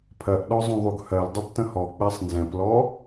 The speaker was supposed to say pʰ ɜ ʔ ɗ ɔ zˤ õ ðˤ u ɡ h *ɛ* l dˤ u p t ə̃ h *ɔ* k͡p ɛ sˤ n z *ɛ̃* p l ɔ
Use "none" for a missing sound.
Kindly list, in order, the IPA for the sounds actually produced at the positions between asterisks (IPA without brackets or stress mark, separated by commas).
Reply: ɜ, ɔ, ɛ̃